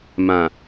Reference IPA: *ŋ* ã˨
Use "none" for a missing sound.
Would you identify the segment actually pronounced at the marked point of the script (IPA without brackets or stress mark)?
m